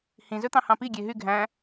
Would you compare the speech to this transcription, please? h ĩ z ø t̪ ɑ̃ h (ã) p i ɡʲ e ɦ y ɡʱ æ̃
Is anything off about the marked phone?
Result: yes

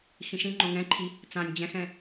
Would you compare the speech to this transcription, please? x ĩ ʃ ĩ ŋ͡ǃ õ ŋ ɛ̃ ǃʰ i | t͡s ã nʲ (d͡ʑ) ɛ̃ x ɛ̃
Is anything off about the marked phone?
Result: no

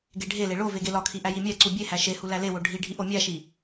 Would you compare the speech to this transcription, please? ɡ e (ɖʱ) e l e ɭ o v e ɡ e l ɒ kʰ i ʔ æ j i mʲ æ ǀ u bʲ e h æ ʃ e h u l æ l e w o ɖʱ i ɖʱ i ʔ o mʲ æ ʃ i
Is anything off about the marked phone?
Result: no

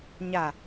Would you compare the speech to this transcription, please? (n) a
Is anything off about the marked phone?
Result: yes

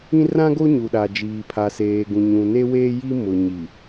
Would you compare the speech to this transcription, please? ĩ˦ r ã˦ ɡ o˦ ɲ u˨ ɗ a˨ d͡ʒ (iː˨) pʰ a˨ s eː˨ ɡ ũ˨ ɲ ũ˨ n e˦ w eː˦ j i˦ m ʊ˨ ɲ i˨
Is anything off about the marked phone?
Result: no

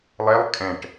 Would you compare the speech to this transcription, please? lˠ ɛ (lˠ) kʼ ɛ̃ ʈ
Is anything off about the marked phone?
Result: no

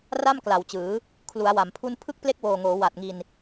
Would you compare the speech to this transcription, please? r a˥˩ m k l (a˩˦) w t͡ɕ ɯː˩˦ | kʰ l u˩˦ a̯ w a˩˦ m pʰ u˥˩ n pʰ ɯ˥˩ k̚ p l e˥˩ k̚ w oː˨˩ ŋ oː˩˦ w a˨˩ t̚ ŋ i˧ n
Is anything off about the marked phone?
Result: no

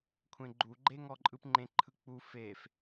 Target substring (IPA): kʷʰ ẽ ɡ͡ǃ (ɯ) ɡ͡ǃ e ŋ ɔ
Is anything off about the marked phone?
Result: yes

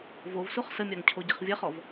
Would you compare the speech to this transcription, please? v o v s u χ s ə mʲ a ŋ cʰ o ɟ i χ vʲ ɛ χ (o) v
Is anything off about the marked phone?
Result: yes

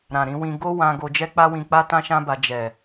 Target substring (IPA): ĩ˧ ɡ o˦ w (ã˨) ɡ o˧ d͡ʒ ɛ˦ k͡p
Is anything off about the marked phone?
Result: yes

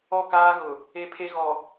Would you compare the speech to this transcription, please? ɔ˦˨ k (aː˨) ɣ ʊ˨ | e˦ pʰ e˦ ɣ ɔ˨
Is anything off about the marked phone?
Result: yes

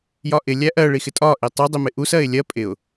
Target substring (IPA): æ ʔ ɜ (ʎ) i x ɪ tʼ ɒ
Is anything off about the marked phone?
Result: yes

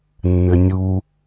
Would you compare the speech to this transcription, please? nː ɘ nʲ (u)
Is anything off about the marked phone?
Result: no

